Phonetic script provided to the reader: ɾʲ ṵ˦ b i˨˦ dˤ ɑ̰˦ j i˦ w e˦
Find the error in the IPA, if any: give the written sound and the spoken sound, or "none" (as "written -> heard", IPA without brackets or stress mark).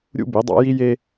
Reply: w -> j